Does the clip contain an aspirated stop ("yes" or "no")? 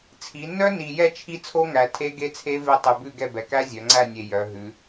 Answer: yes